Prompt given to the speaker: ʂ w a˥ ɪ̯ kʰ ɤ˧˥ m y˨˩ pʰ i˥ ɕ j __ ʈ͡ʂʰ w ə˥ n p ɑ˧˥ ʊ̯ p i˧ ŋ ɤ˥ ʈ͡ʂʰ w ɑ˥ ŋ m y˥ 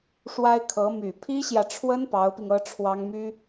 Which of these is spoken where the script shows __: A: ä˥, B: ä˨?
B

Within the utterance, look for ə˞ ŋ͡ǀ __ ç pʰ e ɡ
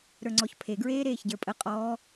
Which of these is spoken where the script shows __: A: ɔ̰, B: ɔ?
B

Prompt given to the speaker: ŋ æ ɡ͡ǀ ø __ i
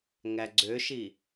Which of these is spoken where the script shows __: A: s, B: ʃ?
B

